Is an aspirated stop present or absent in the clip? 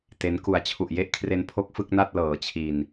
present